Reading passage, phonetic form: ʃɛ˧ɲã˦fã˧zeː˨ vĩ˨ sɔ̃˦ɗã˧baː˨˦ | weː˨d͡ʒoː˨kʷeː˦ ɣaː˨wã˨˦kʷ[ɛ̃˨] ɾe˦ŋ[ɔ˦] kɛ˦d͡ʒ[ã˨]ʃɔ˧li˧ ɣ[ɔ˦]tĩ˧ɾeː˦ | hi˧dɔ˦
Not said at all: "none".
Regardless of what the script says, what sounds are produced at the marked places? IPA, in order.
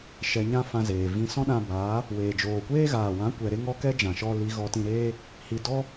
ɛ˨, ɔ˦, ã˨, ɔ˧

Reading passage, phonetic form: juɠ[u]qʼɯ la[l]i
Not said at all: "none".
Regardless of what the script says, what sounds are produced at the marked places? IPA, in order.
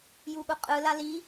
u, l

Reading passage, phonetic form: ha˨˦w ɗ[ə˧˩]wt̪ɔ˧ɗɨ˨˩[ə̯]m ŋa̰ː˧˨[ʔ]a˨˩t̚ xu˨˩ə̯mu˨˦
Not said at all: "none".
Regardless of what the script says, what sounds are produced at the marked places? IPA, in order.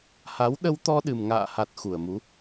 ə˧, none, h

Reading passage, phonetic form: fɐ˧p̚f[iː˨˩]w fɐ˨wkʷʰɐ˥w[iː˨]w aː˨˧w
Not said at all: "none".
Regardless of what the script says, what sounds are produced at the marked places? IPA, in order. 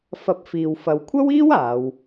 iː˨, iː˥

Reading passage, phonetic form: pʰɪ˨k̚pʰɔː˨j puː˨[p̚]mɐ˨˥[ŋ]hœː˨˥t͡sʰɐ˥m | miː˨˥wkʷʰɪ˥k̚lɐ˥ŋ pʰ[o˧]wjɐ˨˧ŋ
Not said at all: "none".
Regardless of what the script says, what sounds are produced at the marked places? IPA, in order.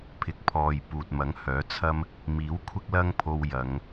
t̚, ŋ, o˧

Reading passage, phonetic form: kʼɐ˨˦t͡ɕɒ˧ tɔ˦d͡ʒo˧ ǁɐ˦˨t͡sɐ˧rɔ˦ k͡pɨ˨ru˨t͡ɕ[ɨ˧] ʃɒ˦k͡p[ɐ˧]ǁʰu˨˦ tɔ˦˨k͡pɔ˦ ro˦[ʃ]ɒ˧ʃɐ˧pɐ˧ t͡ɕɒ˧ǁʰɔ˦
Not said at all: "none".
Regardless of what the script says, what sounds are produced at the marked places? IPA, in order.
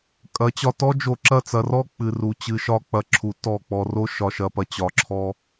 ɨ˧, ɐ˧, ʃ

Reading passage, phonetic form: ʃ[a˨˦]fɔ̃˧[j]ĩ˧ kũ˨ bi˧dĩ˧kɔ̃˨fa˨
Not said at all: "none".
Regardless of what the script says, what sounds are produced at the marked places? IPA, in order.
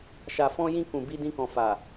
a˨, j

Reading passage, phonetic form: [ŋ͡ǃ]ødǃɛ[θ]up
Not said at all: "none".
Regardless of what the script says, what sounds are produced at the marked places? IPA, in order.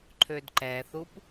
ǃʰ, θ

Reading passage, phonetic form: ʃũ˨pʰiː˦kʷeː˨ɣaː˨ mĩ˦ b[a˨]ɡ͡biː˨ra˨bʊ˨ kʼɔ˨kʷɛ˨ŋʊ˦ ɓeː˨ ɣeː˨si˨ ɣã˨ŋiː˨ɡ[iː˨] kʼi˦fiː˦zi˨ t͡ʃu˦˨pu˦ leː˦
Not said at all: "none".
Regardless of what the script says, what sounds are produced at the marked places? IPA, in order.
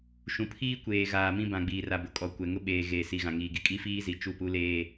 ã˨, i˨

